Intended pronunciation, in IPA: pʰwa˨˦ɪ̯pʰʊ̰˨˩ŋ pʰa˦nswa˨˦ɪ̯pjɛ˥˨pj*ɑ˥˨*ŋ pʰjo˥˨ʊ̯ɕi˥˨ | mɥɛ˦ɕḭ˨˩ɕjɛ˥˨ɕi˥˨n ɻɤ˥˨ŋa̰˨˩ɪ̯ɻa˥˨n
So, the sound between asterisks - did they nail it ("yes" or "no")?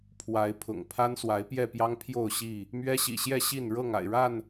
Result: no